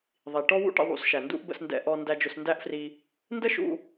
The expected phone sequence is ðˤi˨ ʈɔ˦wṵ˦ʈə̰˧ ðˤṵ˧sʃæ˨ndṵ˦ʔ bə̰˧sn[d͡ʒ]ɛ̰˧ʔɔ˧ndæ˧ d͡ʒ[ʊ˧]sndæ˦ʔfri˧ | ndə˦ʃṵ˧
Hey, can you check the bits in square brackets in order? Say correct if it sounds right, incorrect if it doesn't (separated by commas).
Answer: incorrect, correct